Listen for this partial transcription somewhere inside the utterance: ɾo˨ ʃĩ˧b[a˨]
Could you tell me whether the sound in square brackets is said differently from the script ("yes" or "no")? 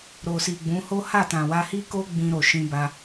yes